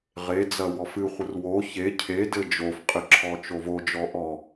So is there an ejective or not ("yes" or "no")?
yes